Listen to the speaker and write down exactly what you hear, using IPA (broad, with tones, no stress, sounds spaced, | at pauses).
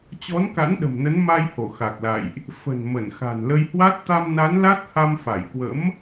t͡ɕ ɔ˨˦ n k a̰˧˥ n ɗ ə̤˨˩ m n ə˨˦ n m a˧ j h o˧˩ x a˨˩ k̚ l a̰˧˨ j ʔ | f ə̤˨˩ n m ə˧˩ n x a̤˨˩ n l ə˧ j h w a˦˥ t̚ t̪ a˧ m n a˨˦ n l a˦˥ t̚ h a˧ m f a˧˩ j k w ə̰˧˥ m